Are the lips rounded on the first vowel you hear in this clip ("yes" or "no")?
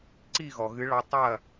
no